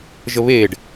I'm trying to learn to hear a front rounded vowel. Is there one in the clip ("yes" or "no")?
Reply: no